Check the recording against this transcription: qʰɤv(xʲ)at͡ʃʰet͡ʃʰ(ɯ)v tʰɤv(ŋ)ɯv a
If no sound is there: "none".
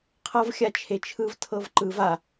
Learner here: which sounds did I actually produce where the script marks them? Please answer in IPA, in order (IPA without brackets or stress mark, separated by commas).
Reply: xʲ, ɯ, ǃ